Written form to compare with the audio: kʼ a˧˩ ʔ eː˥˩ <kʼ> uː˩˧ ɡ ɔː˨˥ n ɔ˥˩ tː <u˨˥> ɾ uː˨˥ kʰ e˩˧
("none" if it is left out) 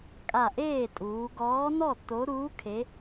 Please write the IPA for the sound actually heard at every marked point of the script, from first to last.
tʼ, o˨˥

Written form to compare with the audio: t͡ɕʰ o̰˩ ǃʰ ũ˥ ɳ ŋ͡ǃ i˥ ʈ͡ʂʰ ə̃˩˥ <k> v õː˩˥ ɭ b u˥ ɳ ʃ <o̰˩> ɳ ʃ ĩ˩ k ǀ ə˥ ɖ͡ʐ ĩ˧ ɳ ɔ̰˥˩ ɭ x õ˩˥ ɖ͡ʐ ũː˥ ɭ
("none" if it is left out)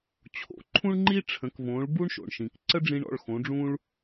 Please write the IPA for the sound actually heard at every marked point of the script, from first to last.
k, o̰˩

